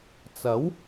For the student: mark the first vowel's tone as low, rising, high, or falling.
rising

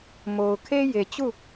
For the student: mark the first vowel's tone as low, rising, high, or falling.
low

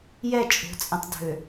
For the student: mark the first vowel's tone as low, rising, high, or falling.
falling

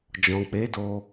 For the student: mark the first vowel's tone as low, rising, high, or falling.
low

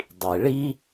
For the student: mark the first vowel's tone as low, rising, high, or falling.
low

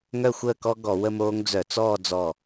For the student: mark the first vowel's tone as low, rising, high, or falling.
falling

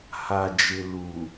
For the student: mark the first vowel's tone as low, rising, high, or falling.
low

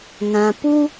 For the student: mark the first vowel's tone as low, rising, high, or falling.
low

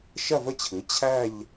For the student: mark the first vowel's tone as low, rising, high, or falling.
falling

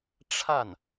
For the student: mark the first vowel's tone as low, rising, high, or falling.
falling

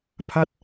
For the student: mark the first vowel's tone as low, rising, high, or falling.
falling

